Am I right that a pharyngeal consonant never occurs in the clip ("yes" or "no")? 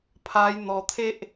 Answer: yes